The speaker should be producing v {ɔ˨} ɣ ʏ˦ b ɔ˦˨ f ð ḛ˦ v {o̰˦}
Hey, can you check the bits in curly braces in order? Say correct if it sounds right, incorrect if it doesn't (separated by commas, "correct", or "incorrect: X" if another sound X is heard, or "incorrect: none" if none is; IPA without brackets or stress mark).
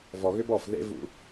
correct, incorrect: ṵ˦